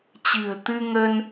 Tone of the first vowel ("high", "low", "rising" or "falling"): low